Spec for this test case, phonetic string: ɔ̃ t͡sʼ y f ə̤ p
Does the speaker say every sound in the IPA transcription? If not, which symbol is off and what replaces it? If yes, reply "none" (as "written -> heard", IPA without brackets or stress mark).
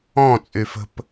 none